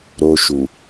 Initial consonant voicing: voiced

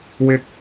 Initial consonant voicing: voiced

